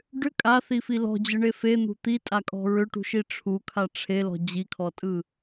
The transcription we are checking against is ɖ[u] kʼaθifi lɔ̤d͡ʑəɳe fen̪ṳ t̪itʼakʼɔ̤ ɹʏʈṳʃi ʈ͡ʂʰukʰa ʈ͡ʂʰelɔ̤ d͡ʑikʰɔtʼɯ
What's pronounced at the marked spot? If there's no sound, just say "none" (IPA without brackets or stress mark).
ʏ